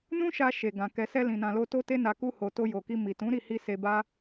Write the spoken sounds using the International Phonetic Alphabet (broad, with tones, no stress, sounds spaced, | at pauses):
n ũ˦ ʃ a˧ ʃ e˨ ɡ ã˨ k ɛ˨ s ɛ˧ l ĩ˨ n ã˨ l o˧ t o˦ t e˦ n a˧ k u˧ h o˨ t o˧ j o˨ k i˧ m i˨ t ũ˨˦ ɾ i˦˨ h i˧ s e˧ b a˦